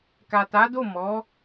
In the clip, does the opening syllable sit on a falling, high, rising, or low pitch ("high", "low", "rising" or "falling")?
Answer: low